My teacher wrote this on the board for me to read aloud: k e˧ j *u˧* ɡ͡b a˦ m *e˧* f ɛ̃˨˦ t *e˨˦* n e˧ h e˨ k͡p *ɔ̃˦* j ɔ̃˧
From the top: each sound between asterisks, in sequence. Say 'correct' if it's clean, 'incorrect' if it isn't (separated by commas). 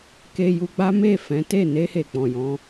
correct, incorrect, incorrect, incorrect